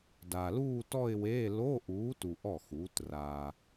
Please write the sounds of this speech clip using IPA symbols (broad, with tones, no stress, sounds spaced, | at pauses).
d a˨ l uː˥˧ t ɔ˥˧ ɪ̯ w eː˧˥˧ l o˧˥˧ ʔ uː˨˥ t u˨ ʔ ɔ˥˩ x uː˨˥ t r a˨